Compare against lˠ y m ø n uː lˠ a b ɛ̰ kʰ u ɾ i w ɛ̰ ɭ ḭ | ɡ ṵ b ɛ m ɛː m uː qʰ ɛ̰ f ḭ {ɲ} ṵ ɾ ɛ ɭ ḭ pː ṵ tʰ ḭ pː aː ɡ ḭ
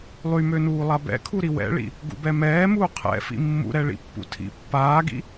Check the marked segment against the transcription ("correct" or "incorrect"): incorrect